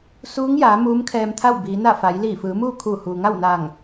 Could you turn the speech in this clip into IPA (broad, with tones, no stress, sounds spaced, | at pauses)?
s uː˧˥ ŋ j aː˩˧ m uː˧˥ m kʰ ɛː˧ m t̪ʰ a˥˨ w b iː˩˧ n a˥˨ f a˩˧ j l iː˧˩ f ɯː˩˧ m uː˥˨ kʰ uː˧˩ h uː˩ ŋ a˥˨ w n aː˧˩ ŋ